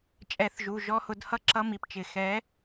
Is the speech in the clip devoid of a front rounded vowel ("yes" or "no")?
yes